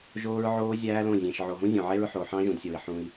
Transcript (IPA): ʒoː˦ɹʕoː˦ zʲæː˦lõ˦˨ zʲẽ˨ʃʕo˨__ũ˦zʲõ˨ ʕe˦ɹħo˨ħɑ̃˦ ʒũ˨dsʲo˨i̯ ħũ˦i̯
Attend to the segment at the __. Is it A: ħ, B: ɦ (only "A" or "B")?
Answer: B